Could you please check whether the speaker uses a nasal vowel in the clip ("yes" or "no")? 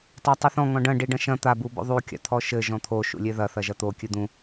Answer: yes